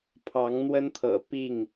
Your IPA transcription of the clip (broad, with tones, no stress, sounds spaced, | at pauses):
pʰ ɑ˨˦ ŋ n̪ w ə˦ n t̪ʰ ɤ̰˨˩ p i˥˨ ŋ